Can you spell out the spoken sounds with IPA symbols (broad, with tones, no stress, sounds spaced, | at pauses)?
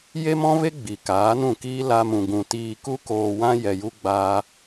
j e˦ m ɔ̃˦ v e˦ ɡ͡b i˨ k aː˨˦ n ũ˦˨ k iː˦ l a˧ m ũ˨ ɡ ũ˨ t iː˧ k u˦ k oː˧ w ã˦ j ɛ˧ j u˦ ɡ͡b aː˦